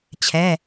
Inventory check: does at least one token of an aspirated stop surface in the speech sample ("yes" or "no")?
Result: yes